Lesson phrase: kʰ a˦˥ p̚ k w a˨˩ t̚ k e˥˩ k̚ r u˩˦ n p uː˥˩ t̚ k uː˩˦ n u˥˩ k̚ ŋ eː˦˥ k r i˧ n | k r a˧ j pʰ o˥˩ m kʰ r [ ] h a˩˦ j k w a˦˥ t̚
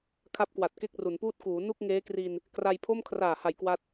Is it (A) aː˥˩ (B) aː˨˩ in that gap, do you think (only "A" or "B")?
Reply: B